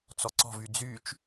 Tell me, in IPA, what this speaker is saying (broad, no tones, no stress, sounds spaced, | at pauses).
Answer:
t͡s ɔ ǀ ɔ̤ v y d͡z y t͡ʃ